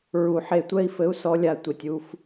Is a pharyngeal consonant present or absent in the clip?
present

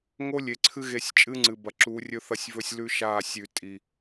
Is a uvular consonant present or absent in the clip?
absent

